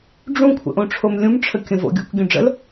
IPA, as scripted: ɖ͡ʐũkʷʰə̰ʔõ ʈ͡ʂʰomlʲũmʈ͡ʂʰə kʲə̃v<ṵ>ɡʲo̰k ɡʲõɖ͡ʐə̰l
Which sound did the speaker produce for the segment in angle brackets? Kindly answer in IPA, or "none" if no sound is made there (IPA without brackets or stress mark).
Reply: o̰